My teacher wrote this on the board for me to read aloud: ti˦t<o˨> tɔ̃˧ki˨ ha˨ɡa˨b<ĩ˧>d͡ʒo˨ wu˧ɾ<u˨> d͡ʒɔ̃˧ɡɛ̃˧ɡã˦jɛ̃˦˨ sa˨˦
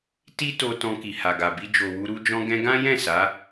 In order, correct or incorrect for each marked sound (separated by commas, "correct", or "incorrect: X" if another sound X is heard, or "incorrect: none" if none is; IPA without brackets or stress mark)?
incorrect: o˧, incorrect: i˧, incorrect: u˦